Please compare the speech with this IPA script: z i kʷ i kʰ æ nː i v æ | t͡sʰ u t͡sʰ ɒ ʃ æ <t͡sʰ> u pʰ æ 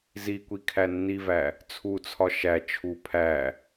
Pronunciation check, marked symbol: incorrect: t͡ʃʰ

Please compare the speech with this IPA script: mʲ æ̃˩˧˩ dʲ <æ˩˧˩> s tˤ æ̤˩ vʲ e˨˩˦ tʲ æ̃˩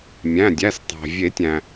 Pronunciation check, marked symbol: correct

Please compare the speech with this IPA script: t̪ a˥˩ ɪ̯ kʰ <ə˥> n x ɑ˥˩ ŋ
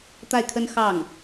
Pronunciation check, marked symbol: correct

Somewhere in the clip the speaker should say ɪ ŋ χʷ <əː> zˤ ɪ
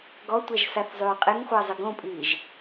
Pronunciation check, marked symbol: correct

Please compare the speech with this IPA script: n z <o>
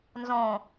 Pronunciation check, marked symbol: incorrect: õ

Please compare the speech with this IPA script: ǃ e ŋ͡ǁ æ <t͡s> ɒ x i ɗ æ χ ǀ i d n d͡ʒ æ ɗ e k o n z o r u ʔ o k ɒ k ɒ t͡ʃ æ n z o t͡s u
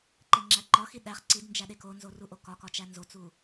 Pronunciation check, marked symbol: incorrect: ǃ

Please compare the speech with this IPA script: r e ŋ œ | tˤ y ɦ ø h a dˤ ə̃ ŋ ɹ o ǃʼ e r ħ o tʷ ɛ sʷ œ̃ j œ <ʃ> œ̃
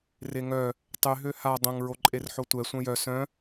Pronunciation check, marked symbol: incorrect: s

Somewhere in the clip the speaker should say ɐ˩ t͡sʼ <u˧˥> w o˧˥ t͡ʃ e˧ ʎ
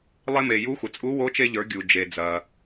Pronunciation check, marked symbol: correct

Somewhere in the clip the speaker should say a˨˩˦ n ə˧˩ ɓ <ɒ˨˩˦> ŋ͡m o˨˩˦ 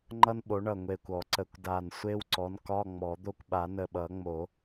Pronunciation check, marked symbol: incorrect: ʌ˨˩˦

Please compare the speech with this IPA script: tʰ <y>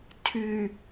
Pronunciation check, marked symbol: correct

